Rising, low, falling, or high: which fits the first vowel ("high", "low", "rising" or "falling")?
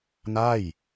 falling